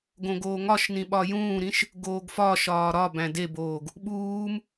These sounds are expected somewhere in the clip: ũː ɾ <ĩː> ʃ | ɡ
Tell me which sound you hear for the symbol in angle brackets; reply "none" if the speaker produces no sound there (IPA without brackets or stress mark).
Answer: ĩ